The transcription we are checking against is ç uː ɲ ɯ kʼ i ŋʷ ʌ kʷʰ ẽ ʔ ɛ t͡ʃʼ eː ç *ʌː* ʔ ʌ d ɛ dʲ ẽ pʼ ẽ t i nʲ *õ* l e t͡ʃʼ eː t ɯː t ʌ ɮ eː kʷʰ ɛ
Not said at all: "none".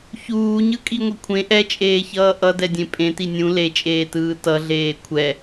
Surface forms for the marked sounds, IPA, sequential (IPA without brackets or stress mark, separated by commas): ʌː, ũ